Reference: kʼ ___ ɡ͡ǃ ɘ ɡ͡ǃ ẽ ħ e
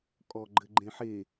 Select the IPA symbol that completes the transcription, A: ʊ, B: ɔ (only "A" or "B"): B